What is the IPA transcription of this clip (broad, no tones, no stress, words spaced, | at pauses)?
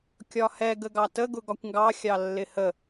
kʲɒhɛɡ əɡɑtə ɡʊɡɒkʷŋɡɑ xʲɑlːɪhə